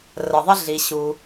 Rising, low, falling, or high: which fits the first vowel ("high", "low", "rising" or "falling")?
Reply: low